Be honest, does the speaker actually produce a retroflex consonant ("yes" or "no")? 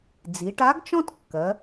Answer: yes